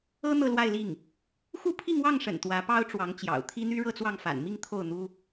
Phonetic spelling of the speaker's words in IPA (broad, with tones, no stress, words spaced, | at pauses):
ɤ˥ n̪ɤ˥˧lwa˥˧ɪ̯li˥˩ŋ | xu˥˧ pʰi˥˧ŋwɑ˥˩ŋʂə̰˨˩n t̪wä˧˥pɑ˥ʊ̯ʈ͡ʂwɑ˧˥ŋt͡ɕjɑ̰˨˩ʊ̯ t̪ʰi˥n̪y˥ɻɤ˥˧t͡swɑ˥˩ŋ fa̰˨˩nmi˥˧ŋ t̪ʰo˥˩ʊ̯n̪u˥